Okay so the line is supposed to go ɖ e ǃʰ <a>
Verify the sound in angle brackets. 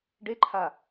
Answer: correct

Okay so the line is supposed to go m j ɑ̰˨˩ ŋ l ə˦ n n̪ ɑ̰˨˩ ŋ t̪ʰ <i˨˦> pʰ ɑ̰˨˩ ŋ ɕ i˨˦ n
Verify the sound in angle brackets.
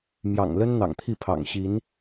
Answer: incorrect: i˥˨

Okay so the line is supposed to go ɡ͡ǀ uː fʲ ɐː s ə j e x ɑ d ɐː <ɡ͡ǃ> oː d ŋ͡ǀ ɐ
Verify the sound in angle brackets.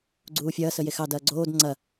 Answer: incorrect: ɡ͡ǀ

